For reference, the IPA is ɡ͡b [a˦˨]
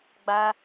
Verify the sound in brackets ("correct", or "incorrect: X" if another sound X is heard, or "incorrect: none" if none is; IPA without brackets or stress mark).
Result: incorrect: a˦